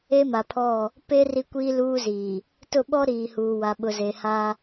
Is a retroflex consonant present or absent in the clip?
absent